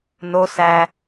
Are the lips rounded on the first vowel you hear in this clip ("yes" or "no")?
yes